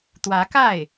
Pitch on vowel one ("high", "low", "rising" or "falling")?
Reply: rising